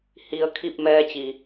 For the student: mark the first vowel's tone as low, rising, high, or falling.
low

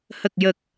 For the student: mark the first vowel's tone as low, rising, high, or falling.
low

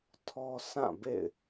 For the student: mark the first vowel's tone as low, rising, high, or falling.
high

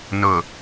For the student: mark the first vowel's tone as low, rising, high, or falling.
low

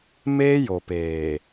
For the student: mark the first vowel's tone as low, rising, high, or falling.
high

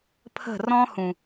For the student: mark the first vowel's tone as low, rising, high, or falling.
falling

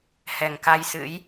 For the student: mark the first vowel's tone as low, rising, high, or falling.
low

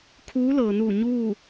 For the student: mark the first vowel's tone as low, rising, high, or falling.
rising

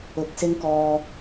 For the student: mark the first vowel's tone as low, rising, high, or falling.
rising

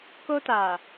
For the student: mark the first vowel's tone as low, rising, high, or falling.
high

